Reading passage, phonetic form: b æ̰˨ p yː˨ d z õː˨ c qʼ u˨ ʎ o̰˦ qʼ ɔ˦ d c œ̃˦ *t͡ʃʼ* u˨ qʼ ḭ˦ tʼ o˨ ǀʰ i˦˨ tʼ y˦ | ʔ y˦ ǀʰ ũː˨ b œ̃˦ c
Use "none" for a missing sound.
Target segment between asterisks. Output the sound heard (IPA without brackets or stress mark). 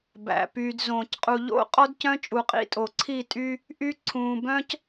t͡ʃʼ